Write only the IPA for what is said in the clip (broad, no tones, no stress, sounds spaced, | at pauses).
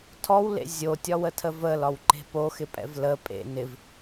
tʰ ɔ w l ḛ zʲ o tʲ ɒ w ə tʰ ə v ə l ɒ w ǃ e̤ p o x ɪ pʼ ɛ̰ v l ə pʼ ḛ n ɪ v